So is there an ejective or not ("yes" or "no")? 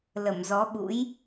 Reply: no